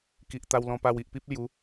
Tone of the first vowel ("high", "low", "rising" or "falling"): low